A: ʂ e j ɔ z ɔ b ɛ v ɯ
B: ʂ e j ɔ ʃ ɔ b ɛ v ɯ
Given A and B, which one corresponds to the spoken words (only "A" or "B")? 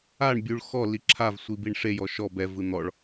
B